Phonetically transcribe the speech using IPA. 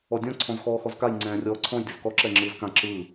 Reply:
ɔ dʲ ɔ̃ ǀʰ ɔ̃ z x ɔː x ɔ z k a j ŋ͡ǀ ɛ̃ː rʲ ɔː ǀʰ ɔ̃ j dʲ o z k ɔ ǁ ɛ ŋ͡ǁ ɯː z k ã ǁ ɯː

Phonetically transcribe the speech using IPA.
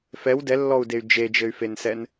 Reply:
f ɛ w d ɛ lː ɔ u̯ d e y̯ d͡ʒ e d͡ʒ ɘ y̯ f e n s ɛ n

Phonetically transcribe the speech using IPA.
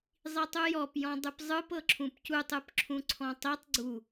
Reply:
zˤ i tˤ u j ɔ p j ɔ̃ dˤ ɯ p zˤ ɯ p ɤ ǁʰ ũ p c u tˤ ɯ p ǁʰ ũ ǀʰ ɔ̃ tˤ i tˤ ɡ͡ǀ u

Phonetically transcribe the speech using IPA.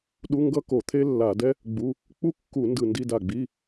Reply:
ɗ u˧˥˧ ŋ ɡ ʌ˥ k o˧˩˧ t̪ʰ e˥ lː a˧˩˧ d ɛ˥ | ɡ͡b u˧˥˧ | k͡p u˥ kː u˧˩˧ n d ɯ˧˩ n d i˧˥˧ d a˧˩ ɡ͡b i˧˥˧

